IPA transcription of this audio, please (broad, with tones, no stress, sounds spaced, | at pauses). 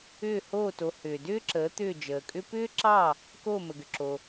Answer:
ʏː˥˩ h oː˥˩ t o˩˥ h ʏː˩ d ʏː˥ ǁ əː˩˥ t̪ ʏː˥˩ d͡ʒ əː˩ kʼ ʏ˥ p ʏː˥ ǁ ɑ˥˩ | k oː˥˩ m ə˩ ɡ ʏ˩ ǁ o˩